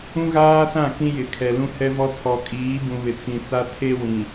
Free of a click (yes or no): yes